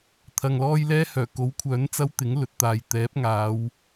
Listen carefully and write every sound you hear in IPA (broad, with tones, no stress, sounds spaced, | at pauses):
t̪ʰ ɐ˨ ŋ l ɔː˥ j l ɛː˥ h œː˨˩ k o˨˥ w kʷʰ œː˨˥ n t͡s ɐ˥ w t̪ ɪ˨˥ ŋ l ɵ˨ t̚ t̪ aː˨ j t̪ ɛː˨˥ p̚ ŋ aː˨˧ w